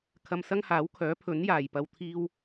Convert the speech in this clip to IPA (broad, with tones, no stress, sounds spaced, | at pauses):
kʰ ɐ˧ m s ɐ˥ ŋ h aː˨˥ w kʰ œː˨˥ pʰ ɵ˨˥ n j aː˨ j p ɐ˧ w t̪ʰ iː˥ w